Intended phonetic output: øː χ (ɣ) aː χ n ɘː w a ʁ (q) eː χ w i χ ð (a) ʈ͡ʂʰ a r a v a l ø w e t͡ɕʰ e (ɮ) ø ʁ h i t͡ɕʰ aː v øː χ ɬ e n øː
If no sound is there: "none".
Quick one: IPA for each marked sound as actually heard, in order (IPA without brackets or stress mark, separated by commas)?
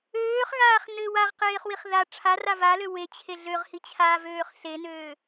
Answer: ɣ, q, a, ɮ